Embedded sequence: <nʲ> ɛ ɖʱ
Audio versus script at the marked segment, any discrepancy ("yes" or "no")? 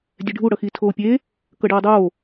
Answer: yes